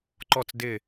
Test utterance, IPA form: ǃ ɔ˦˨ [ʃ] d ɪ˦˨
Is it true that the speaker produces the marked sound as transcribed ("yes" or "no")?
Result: no